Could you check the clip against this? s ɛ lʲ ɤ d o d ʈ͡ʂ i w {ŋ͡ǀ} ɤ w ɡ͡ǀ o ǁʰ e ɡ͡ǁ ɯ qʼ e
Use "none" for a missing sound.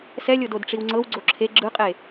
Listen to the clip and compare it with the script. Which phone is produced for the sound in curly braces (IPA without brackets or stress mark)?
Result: ŋ͡ǀ